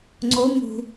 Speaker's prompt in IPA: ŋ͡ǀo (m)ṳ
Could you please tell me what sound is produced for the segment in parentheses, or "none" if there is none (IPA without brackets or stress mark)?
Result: m